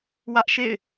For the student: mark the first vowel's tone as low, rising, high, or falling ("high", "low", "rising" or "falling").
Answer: high